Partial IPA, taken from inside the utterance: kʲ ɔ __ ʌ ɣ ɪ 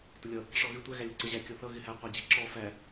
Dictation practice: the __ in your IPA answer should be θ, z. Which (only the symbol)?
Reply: θ